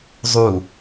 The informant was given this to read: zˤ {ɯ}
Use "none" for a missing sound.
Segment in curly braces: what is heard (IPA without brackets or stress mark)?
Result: u